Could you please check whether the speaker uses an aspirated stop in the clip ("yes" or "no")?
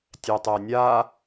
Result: no